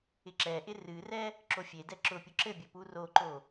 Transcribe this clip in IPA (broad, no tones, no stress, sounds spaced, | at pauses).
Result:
ɪ ǁ ɛ ʔ ɪ r ɨ r ɛ | ǁ o fʲ e d ɛ ǁ ʊ pʲ ʊ ǁ ɘ bʲ ɘ p u r o ǃ o